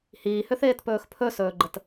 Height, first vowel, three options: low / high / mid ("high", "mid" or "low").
high